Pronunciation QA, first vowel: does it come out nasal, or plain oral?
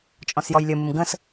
nasal